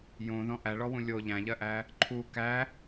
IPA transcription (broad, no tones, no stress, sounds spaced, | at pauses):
j õ ð ɔ̃ ʔ æ ɭ ɔ w ũ lʲ o ʎ æ̃ ʎ ɜ ʔ æ | ǃʰ u k æ